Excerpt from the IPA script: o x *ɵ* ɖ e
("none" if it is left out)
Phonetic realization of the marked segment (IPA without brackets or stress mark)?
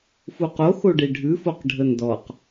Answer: o